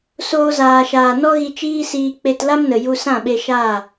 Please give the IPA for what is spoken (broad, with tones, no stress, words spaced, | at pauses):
soː˧zaː˨ʃaː˨ nɔ˦ɣi˧ t͡ʃiː˦siː˧ k͡pe˧tla˦mnə˨ ju˧ sã˦˨ɓe˧ʃaː˦˨